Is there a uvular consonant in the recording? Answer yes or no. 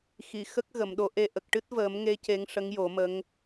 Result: no